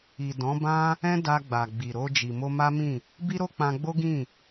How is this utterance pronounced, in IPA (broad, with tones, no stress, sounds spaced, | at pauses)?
i˨ d ɔ̃˨˦ b ã˦ | ɛ̃˦ d a˧ ɡ͡b a˨ ɡ͡b i˨ ɾ o˧ d͡ʒ i˨ m o˧ m a˦ m ĩ˦˨ | b i˦ ɾ o˦ k͡p ã˧ ɡ͡b o˦ ɡ ĩ˦˨